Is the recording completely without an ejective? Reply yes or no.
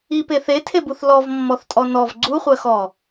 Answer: no